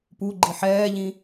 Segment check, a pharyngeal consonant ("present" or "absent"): present